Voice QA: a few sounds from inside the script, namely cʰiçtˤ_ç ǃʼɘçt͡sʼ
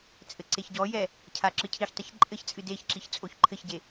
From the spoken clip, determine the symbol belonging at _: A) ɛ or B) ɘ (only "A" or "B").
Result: B